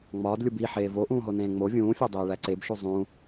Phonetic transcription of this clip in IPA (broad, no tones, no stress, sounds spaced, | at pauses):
ŋ͡m ɒː d lʲ u b i ħ eː v o ʔ ũː ɦ o n ẽː ŋ͡m o vʲ ũː fʲ ɒ dˤ eː ɭ æ ǀ e b ʃ u zˤ ũ